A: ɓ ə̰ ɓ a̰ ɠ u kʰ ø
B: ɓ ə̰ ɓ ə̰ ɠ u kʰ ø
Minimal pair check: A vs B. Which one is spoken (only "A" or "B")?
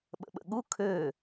B